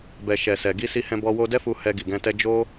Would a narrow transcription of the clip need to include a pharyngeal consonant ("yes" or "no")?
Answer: no